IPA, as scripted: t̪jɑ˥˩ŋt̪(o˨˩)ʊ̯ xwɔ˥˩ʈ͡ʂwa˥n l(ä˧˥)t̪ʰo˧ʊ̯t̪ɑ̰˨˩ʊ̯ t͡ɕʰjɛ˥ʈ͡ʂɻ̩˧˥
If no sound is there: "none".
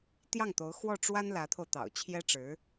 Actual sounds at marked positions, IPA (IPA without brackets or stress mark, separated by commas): o˧˥, ä˧˥